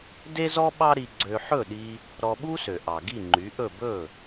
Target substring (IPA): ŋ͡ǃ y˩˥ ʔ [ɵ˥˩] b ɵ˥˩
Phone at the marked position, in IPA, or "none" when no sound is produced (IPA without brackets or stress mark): ɵ˥˩